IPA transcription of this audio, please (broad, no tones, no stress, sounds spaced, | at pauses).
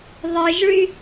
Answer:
ðˤ ɯ ʒ ɭ y